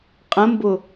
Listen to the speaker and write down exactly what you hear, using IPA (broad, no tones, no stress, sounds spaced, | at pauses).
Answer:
qʼ ə̃ m b ʊ